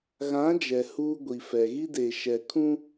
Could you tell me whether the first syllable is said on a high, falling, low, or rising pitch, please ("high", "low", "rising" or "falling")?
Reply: rising